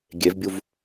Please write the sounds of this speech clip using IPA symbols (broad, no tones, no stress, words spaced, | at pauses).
ɡʲevbʲuv